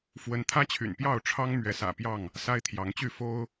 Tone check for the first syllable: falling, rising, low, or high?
rising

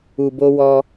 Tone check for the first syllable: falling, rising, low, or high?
low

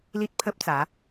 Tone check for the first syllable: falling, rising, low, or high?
high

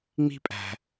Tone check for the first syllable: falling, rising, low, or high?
high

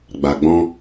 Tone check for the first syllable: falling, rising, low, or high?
low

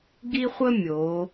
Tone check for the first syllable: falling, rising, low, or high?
high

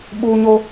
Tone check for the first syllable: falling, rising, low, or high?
high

